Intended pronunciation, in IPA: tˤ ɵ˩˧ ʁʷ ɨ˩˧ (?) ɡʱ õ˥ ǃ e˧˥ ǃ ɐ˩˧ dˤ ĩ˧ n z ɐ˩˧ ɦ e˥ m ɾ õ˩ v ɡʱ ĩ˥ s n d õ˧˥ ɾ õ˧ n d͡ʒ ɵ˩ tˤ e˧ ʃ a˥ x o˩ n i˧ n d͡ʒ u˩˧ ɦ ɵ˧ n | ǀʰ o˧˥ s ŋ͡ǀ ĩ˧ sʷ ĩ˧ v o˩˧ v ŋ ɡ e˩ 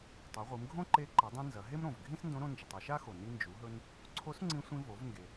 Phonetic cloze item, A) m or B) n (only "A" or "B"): A